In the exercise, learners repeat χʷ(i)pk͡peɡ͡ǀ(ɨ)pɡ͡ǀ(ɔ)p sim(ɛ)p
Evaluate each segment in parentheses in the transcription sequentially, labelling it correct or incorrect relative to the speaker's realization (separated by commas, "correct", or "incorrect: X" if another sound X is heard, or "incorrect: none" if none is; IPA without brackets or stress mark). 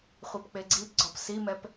incorrect: e, incorrect: i, correct, correct